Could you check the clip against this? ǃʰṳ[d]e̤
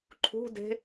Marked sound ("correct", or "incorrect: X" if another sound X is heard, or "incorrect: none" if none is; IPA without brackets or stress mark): correct